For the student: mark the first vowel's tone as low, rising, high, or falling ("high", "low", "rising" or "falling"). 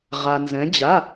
low